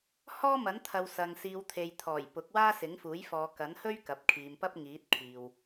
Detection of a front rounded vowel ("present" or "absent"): absent